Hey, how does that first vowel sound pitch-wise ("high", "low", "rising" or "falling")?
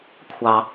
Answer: low